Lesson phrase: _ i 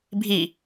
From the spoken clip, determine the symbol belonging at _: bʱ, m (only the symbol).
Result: bʱ